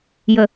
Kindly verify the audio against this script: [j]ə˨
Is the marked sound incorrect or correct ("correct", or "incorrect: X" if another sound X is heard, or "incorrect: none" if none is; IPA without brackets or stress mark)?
correct